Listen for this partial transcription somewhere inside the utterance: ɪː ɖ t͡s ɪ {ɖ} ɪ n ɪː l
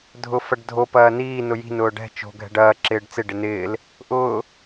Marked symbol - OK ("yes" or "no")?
yes